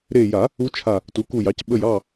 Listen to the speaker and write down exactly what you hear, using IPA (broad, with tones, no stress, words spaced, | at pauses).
ɾe˧˩ ja˨˩˦ | u˧˥t͡ʃʰa˧˩ | tu˩˥ku˧˩jɑ˩˥c ɓə˥˨j ɑ˥˨